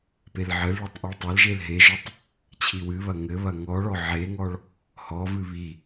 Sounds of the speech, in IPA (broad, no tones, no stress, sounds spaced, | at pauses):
p e l ʕ ɘ l ɭ o tˤ ʔ o ɭ tˤ ɐ l ʒ e l ɦ e ʒ ɔ tˤ | t͡ɕʰ i w ɨ β ɐ ŋ ɘ β ɐ ŋ ɔ ɭ ɔ ʕ e ŋ ɔ ɭ | h ɔ v ɨ β i